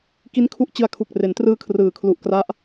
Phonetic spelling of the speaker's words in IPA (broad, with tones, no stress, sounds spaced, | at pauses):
k i˦˥ n kʰ u˦˥ ʔ t͡ɕ ɯ˧ a̯ kʰ u˨˩ k̚ r e˩˦ n t r ɯː˧ kʰ r ɯː˩˦ kʰ l u˨˩ ʔ k r a˦˥ ʔ